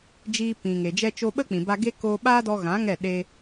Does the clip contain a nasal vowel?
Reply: yes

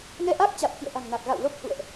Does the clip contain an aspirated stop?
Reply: no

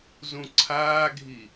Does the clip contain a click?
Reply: yes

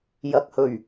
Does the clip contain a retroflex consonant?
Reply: no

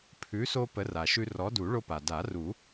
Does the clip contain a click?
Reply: no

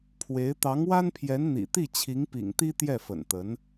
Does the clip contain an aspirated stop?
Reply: yes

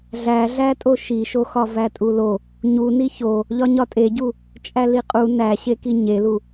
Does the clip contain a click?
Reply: no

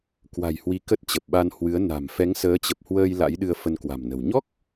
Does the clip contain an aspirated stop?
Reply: no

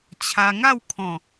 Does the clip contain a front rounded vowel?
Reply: no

